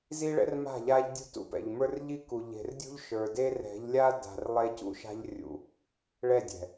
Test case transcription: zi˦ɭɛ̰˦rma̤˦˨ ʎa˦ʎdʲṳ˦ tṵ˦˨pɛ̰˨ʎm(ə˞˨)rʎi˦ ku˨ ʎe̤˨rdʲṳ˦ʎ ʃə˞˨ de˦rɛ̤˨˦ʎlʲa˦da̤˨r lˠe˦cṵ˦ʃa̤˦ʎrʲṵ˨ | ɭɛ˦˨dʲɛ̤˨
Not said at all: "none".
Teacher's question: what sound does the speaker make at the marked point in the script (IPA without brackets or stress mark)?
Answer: ə˞˦